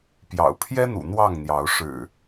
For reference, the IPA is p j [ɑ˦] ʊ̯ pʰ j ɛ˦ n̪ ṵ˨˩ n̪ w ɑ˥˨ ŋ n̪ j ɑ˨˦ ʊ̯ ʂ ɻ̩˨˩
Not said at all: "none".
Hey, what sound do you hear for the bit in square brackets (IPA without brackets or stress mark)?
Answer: ɑ̰˨˩